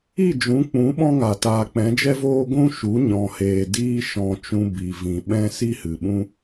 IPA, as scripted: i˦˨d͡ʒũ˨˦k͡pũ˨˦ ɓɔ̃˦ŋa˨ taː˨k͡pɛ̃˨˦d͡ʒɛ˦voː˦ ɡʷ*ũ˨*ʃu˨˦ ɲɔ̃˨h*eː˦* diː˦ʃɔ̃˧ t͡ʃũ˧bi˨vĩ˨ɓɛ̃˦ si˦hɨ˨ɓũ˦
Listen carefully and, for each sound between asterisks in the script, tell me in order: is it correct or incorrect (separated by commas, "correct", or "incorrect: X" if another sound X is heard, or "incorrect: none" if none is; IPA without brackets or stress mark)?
incorrect: ũ˦, incorrect: eː˨